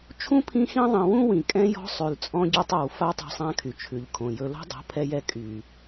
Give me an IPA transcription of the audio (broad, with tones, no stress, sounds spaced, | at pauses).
t͡ʃʰ ũ˦ pʰ ĩ˦ x ĩ˦ ðˤ ĩ˨ w ũ˦ w ĩ˨ kʼ ɛ̃˦ j ɔ̤˦ sˤ ʉ˨ l t͡sʼ ɔ̃˦ ɟ ɔ˦ tˤ a˨ w f a˦ tˤ o̤˦ sˤ ã˦ kʰ y˨ t͡ʃʰ ʉ˨ ʎ kʰ õ˨ j ɵ˦ l o̤˦ dˤ o̤˨˦ pʰ ɛ˦ j ɛ˦ kʼ y˨